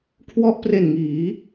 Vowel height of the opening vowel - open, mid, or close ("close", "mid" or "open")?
mid